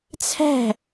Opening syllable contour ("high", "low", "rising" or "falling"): falling